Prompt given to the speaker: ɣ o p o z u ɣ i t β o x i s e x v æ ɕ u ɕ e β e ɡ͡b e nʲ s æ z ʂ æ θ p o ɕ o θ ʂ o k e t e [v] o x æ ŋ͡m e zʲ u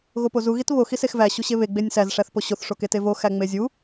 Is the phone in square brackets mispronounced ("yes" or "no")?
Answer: no